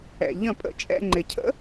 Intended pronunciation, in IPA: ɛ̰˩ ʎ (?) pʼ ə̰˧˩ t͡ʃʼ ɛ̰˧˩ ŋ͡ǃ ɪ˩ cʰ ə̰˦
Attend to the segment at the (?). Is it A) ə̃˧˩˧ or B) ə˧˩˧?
A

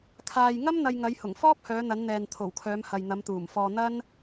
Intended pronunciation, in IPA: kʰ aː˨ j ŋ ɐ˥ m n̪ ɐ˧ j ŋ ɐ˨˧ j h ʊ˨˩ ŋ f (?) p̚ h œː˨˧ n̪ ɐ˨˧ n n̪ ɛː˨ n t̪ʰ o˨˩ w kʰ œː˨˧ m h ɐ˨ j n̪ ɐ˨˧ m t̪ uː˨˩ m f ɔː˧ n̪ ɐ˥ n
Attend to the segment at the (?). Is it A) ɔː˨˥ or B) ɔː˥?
B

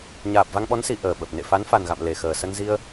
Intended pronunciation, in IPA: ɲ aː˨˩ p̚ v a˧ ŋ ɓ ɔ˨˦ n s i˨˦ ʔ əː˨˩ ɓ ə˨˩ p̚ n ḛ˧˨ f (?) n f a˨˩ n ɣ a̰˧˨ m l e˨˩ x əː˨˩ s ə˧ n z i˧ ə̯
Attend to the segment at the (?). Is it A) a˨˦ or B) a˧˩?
A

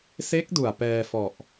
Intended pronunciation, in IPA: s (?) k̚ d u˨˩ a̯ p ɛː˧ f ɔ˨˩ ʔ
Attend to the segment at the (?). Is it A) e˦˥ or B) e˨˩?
A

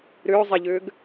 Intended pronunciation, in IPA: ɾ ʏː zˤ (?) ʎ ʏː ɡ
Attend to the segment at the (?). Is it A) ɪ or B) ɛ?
B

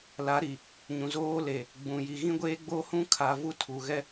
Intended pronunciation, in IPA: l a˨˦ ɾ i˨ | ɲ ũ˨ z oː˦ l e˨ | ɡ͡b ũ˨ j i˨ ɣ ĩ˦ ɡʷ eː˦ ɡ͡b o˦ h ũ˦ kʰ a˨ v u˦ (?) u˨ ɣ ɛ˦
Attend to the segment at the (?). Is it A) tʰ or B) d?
A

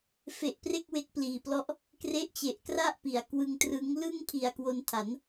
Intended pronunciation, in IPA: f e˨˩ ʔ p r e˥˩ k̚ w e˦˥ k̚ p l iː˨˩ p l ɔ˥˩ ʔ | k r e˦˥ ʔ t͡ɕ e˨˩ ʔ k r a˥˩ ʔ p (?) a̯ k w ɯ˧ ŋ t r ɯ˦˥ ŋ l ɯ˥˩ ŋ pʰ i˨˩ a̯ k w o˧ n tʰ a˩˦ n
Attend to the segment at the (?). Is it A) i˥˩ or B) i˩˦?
B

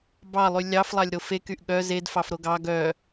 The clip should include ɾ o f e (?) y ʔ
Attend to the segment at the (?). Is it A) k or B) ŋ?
A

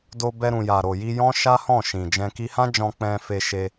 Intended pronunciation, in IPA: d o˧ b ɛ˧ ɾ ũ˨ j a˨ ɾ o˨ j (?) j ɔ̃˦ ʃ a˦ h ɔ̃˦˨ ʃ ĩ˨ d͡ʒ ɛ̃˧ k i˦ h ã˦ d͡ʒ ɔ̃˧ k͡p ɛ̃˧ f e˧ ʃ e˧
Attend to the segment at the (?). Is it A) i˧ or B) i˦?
A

